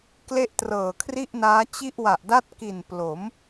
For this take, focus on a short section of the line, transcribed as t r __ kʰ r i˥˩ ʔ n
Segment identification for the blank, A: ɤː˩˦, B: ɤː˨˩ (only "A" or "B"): B